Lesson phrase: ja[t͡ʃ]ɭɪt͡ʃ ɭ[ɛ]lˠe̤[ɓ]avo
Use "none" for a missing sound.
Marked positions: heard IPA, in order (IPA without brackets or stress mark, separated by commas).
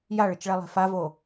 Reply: none, ɛ, f